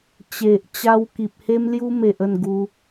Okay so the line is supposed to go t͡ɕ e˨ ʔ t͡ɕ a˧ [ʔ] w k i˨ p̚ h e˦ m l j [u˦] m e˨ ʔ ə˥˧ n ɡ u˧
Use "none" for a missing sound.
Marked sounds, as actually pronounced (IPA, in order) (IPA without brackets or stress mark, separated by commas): none, u˦